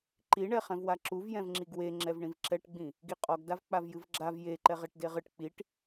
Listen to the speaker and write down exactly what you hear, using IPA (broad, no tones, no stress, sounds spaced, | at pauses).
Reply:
ǃ i ɳ ɛ χ ɛ̃ v w a ǁ u v j ɛ̃ v ŋ͡ǁ i ɡ w e ŋ͡ǁ ɛ v ɳ ĩ v ǁ ɛ ʈ ɡ͡b ĩ | ɡ i qʼ ɔ ɡ d a v k͡p a v j ɨ v ɡ͡ǁ a v j e ǃ ɛ ʁ e ʈ d e ʁ ɨ ʈ k͡p i ʈ